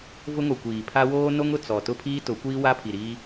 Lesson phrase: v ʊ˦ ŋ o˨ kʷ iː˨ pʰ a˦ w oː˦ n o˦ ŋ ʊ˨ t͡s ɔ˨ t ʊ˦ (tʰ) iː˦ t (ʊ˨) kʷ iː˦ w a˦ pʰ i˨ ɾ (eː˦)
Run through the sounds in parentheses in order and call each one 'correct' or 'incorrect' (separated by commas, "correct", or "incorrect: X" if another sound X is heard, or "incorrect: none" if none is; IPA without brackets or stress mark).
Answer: incorrect: pʰ, incorrect: ʊ˨˦, incorrect: iː˦